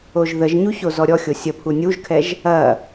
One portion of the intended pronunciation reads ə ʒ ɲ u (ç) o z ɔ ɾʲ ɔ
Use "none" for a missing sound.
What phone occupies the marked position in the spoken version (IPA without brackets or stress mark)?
ç